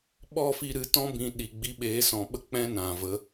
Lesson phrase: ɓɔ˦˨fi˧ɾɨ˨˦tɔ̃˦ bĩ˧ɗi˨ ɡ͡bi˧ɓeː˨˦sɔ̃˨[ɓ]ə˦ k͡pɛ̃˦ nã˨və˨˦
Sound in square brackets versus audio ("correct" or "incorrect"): correct